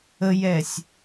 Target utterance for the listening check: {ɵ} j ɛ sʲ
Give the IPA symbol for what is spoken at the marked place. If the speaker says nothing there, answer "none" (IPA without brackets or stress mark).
ə